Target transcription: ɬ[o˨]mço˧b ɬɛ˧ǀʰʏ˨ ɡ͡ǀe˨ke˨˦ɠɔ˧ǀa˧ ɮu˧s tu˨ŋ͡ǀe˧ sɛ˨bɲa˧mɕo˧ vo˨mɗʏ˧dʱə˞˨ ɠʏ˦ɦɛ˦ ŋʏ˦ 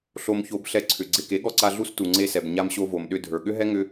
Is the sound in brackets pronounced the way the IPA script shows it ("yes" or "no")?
no